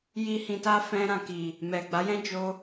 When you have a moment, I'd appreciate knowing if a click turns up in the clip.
no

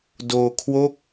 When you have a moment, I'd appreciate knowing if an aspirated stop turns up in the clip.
yes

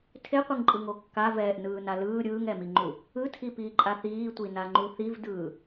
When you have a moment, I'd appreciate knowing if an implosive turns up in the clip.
no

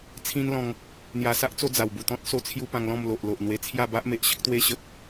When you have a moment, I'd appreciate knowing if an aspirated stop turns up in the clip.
yes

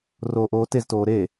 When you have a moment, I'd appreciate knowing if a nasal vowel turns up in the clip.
no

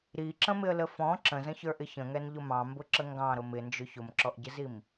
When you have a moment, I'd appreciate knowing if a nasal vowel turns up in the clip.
yes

